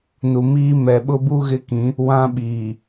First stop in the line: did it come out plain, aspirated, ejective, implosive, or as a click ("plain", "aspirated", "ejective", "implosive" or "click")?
implosive